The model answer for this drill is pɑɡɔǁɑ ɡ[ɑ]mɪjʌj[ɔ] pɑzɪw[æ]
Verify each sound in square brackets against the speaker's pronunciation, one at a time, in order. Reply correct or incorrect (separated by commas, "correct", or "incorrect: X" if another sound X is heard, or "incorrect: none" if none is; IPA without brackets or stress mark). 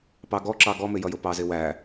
incorrect: ɔ, incorrect: ʊ, correct